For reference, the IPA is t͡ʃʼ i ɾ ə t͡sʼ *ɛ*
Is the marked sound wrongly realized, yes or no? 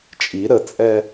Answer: no